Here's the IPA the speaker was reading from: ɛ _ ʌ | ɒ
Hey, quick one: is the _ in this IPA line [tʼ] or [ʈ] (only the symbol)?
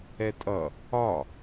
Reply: tʼ